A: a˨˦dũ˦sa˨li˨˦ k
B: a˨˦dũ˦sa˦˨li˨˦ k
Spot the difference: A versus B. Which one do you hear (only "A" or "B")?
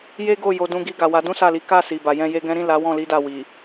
B